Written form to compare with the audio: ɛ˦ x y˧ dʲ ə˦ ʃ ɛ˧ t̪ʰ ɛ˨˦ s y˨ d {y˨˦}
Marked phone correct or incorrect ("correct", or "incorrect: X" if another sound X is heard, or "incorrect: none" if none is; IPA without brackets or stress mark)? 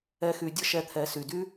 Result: incorrect: y˧